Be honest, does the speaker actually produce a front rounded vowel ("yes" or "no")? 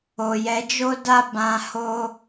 no